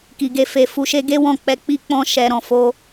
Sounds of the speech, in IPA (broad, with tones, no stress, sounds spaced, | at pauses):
k i˧ ɡ e˧ f e˧ f u˧ ʃ e˦ ɡ e˦ w ɔ̃˦˨ k͡p ɛ˧ k͡p i˦ k͡p ɔ̃˦ ʃ ɛ˧ ɾ ɔ̃˨ f o˧